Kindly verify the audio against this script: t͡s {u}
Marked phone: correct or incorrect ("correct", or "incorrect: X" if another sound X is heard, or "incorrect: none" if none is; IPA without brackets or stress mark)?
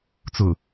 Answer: incorrect: ʊ